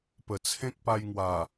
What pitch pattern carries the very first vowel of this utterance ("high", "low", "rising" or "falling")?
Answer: low